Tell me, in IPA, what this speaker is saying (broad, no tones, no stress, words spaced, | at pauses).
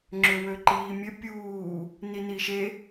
ŋ͡ǁøwøǃiːmʲɘ pʲuː | niniʃe